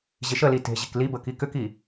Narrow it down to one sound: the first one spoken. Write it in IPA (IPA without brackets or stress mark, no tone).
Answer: ʑ